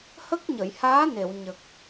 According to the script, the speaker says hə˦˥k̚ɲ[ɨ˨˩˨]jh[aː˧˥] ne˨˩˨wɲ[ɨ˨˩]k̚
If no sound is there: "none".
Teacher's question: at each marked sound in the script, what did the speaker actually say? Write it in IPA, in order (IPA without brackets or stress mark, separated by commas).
ə˨˩˨, aː˧˥, ə˨˩